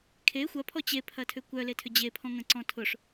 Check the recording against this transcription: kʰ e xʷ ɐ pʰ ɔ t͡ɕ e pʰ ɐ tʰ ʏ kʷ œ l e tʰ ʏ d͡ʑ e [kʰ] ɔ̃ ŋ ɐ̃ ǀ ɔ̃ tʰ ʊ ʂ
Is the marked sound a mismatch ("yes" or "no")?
yes